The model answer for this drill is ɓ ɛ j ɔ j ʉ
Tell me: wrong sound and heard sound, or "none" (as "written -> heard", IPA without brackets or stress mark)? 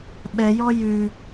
none